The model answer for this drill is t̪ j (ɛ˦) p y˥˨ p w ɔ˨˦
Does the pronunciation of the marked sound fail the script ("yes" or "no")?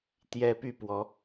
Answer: no